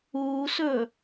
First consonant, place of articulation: alveolar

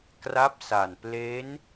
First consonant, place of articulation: velar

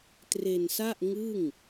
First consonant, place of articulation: alveolar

